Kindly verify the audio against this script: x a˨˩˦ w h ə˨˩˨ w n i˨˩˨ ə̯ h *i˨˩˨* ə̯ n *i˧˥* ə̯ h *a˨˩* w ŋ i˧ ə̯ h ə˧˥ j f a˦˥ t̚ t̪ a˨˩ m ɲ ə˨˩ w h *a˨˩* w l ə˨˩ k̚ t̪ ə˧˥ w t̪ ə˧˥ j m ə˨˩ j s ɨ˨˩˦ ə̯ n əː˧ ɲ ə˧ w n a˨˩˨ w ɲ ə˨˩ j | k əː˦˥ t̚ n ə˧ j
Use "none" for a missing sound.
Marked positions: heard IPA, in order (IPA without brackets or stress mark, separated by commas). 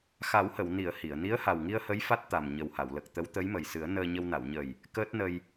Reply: i˨˩˨, i˧˥, a˨˩, a˨˩˨